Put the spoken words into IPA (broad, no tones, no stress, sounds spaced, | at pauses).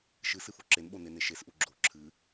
ʃ ɨ s ɨ f o ǁ e n ɓ o n e n e ʃ e s ʔ u ɡ͡ǁ o ǁʰ ɨ